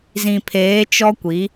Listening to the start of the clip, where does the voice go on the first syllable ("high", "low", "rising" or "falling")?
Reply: low